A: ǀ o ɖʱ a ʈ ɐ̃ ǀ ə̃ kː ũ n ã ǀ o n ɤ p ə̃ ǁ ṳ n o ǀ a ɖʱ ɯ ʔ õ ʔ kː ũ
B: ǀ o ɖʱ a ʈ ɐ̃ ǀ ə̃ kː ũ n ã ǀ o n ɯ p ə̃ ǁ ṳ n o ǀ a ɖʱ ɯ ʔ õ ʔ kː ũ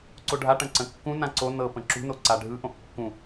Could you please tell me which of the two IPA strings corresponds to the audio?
A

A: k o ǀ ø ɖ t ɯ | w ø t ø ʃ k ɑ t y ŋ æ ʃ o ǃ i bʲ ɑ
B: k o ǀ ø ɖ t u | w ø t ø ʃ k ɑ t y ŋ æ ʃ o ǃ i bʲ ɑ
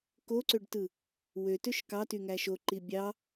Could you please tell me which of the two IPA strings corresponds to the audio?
A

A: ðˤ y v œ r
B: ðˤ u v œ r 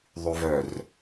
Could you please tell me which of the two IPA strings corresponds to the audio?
A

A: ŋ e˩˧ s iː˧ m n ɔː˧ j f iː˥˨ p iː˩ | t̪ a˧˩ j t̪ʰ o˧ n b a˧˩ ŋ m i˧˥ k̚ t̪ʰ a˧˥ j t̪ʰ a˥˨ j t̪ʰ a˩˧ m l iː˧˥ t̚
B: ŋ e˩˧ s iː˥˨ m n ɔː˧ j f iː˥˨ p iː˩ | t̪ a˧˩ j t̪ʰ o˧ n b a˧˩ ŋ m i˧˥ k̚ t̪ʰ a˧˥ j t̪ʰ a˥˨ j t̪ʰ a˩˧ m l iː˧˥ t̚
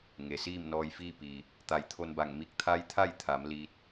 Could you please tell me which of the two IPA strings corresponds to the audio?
B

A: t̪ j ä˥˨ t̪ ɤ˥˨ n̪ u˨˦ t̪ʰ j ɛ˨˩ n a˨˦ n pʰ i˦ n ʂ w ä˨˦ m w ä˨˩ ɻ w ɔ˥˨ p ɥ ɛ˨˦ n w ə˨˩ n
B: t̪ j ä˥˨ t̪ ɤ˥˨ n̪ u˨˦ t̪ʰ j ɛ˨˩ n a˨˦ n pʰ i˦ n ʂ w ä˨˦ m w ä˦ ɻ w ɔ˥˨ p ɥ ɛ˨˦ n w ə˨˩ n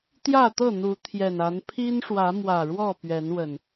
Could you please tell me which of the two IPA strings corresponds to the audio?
A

